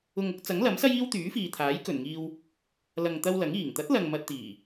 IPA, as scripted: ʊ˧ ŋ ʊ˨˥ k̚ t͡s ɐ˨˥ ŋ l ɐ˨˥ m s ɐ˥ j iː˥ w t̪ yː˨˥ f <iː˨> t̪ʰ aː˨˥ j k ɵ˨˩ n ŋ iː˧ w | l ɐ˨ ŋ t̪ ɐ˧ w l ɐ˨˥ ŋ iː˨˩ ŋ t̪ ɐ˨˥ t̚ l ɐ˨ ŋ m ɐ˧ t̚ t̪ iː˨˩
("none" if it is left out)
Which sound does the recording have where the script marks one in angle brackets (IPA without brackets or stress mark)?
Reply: iː˨